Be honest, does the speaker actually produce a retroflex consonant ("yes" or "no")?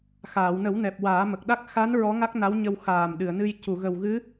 no